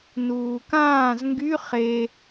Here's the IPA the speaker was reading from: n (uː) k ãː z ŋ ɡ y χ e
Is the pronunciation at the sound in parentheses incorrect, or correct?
correct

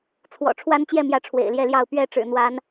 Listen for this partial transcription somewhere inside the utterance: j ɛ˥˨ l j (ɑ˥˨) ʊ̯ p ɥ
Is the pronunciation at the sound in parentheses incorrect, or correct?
correct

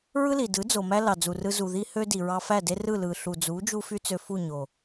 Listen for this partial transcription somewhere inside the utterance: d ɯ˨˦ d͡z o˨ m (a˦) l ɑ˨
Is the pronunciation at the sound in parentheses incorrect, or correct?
incorrect: æ˦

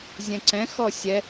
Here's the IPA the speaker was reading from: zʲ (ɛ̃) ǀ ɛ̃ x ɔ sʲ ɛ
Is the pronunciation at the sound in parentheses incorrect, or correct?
correct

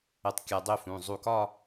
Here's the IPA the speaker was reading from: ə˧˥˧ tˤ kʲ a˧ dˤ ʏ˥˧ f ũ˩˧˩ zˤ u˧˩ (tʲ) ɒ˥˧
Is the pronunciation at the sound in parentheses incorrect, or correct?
incorrect: k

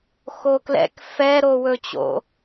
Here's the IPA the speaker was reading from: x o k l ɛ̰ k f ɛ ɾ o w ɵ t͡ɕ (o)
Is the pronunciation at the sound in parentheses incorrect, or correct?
incorrect: o̰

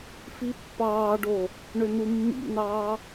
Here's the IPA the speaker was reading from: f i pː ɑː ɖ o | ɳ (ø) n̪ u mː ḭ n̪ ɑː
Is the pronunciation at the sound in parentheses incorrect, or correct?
correct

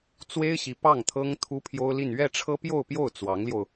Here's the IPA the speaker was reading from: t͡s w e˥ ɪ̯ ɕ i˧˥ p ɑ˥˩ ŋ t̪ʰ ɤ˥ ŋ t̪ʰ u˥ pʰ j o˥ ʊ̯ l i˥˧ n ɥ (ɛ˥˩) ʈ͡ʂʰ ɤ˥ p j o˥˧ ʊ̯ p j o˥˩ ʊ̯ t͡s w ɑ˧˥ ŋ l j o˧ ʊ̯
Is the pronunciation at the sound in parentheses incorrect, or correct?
correct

